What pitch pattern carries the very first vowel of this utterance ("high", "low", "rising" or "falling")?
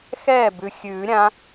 falling